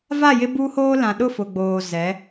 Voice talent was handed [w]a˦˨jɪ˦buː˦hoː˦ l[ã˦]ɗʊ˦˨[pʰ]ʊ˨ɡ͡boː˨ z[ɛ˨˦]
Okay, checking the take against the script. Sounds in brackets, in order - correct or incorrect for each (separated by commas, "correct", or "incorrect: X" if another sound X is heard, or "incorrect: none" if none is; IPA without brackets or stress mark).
incorrect: v, incorrect: ã˨, incorrect: f, correct